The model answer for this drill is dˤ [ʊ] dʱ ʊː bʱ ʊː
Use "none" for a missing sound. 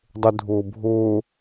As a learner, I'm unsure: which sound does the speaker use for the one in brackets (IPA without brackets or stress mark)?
ʊ